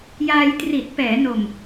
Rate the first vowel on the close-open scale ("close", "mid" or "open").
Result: open